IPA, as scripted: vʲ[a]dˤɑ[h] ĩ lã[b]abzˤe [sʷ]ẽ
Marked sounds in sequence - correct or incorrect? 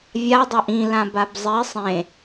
correct, incorrect: ʔ, correct, incorrect: sˤ

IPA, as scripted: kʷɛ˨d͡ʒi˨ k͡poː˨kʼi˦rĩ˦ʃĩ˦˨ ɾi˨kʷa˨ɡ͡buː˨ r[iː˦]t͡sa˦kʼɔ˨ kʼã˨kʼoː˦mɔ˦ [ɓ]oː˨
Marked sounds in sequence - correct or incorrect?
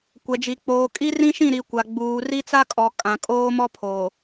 incorrect: i˦, incorrect: pʰ

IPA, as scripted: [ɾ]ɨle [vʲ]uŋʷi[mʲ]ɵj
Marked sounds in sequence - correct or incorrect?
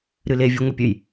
correct, correct, incorrect: pʲ

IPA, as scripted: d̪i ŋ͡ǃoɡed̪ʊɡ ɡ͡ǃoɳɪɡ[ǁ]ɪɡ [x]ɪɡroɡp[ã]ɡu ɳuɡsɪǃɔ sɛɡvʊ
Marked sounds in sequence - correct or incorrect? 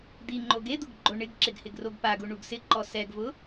correct, incorrect: h, incorrect: a

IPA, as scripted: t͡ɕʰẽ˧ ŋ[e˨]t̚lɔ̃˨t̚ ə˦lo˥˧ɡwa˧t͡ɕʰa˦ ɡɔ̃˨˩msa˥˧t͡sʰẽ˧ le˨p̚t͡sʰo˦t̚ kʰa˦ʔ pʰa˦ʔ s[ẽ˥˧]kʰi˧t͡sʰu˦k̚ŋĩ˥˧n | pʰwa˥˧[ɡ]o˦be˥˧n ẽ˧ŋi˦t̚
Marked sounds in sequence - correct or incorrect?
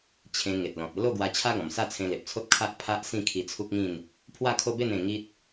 correct, incorrect: ĩ˥˧, incorrect: kʰ

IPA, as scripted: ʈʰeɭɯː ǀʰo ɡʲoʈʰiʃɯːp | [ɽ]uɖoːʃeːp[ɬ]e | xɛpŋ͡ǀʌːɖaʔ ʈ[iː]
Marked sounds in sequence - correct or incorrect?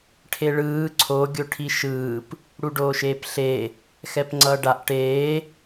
correct, correct, incorrect: eː

